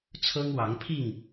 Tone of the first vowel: high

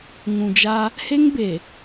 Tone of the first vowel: low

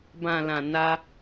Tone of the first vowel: low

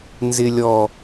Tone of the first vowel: low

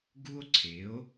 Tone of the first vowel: high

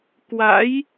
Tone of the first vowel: rising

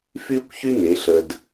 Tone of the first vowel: high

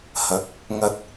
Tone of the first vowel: rising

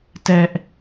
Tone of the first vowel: high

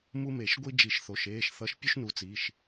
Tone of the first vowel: high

